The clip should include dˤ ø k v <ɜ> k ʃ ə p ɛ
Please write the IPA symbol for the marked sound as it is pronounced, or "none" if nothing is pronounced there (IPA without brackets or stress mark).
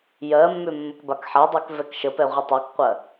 ɛ